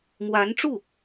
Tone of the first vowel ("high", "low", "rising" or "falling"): rising